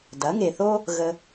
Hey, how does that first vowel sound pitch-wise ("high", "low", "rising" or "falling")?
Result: rising